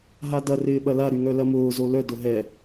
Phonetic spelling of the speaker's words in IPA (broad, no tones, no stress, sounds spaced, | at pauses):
ɦ a d ɐ r ɪː ɓ ɐ l a ɾ y ŋ œ l ɐ m ʊː z o l œ d ʊ ɦ ɛ